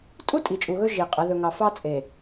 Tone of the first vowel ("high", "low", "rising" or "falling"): high